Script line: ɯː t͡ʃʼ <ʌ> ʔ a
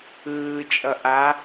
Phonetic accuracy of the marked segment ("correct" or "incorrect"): correct